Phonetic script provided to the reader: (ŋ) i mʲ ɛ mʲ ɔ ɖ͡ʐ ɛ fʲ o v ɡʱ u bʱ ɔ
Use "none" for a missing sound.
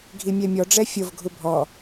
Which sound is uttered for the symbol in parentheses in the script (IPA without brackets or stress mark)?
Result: ɡʱ